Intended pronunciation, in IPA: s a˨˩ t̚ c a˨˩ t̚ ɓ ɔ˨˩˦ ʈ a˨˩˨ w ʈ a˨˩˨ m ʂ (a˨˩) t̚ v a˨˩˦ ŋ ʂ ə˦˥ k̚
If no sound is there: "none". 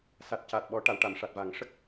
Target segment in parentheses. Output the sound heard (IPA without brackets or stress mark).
a˨˩